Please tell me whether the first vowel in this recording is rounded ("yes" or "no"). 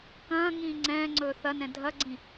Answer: no